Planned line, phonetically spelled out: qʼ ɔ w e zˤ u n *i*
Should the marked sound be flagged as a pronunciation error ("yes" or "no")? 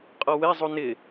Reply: yes